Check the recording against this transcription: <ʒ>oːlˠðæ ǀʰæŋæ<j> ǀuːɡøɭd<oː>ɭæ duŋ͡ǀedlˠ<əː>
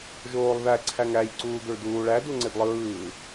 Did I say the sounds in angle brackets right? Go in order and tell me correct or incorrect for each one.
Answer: correct, correct, incorrect, incorrect

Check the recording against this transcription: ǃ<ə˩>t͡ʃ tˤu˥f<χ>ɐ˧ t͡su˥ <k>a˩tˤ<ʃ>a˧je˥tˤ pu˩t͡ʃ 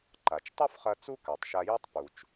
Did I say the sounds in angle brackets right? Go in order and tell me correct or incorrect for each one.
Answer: incorrect, correct, correct, correct

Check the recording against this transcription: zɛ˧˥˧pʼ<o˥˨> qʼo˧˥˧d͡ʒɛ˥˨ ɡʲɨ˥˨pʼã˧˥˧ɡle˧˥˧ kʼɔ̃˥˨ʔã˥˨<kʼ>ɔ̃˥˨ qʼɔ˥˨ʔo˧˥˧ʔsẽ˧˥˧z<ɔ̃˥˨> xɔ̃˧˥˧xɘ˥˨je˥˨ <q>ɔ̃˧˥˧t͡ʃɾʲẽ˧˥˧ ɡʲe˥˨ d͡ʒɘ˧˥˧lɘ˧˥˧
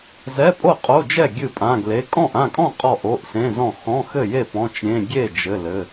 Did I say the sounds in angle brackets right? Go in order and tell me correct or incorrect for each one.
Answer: correct, correct, correct, incorrect

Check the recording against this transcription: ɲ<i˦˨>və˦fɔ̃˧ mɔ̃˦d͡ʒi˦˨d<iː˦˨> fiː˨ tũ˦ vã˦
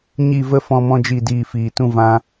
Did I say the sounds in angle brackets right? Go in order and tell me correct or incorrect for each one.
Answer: correct, correct

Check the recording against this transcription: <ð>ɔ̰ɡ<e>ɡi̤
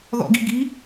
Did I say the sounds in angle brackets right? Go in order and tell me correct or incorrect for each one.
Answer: correct, incorrect

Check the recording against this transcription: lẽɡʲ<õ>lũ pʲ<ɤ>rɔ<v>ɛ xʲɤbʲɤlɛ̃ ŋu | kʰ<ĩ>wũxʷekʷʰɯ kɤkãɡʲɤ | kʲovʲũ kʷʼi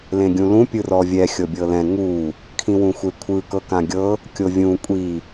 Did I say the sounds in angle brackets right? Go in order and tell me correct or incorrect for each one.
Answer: incorrect, incorrect, incorrect, correct

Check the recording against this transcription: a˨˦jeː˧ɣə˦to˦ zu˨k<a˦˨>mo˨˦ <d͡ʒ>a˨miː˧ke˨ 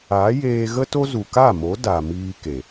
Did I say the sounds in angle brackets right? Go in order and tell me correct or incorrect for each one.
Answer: correct, incorrect

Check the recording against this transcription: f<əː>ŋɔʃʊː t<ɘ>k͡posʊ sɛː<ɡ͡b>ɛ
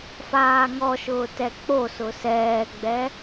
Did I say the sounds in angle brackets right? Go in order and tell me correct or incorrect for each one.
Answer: incorrect, incorrect, correct

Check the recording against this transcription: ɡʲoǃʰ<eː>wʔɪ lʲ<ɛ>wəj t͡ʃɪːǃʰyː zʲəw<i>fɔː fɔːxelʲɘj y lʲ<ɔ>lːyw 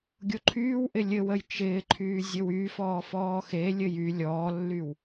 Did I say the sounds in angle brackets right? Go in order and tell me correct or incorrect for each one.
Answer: incorrect, incorrect, incorrect, incorrect

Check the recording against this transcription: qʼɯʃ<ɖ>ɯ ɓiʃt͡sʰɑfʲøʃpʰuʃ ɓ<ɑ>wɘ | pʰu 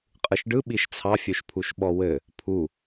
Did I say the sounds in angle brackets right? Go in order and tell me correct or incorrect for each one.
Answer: correct, incorrect

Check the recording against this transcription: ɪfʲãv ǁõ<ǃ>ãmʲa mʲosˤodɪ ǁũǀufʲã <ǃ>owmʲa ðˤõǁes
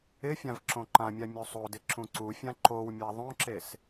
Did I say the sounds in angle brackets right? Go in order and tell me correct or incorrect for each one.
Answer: correct, correct

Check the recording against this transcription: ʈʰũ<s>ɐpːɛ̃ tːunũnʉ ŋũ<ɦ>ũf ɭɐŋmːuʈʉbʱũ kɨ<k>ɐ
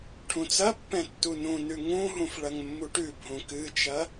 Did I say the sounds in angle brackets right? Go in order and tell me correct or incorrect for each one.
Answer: incorrect, correct, incorrect

